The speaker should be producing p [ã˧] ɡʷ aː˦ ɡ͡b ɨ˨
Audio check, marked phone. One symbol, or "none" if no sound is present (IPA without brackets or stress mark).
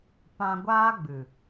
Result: ã˧